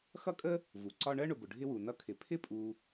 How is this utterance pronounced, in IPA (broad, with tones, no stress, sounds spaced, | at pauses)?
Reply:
x ʌ˥ kʼ ə˥ | v u˩ ǀ ɒ˦ ɳ ɜ˥ ɳ ʊ˨ b ʊ˩ ɖʱ ɪ˦ w u˩ n ʌ˦ kʰ ɪ˩ pʰ ɪ˥ pʼ u˨